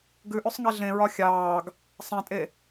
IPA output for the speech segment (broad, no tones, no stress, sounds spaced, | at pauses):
ɡ ʉ ʔ ʉ sˤ ŋ ɛ ɮ ẽ ɹ ɒ xʲ ɑː ɡ | sˤ ɛ̃ tʼ e